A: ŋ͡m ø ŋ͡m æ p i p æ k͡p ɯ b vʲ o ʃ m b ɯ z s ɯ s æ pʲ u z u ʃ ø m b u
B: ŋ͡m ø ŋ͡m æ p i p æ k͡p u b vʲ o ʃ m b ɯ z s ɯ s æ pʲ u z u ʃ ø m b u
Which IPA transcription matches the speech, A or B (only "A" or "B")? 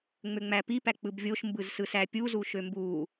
A